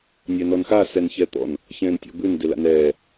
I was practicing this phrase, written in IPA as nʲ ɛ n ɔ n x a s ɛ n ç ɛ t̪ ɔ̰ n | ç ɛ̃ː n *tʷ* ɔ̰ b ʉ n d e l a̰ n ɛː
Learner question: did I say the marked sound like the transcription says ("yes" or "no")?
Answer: no